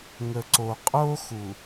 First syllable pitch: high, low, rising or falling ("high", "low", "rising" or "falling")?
low